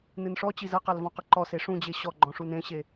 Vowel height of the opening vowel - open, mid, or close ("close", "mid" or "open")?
close